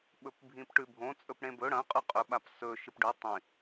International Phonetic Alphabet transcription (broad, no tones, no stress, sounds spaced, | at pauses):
ɓ ɵ p bʱ ĩ p ʈ ʉ bʱ õ t͡sʼ ɵ p ɽ ẽ b ɵ ɽ ɐ̃ qʼ ʉ qʼ ɵ ɓ a p s ɵ ʃ ɨ p ɖ ʉ tˤ ĩ